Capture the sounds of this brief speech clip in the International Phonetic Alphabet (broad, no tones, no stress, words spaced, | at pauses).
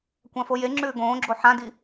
kʷãfojeŋ͡ǁʉː ɡõːɡ͡ǁo ħãdi